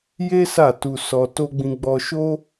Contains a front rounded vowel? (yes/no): no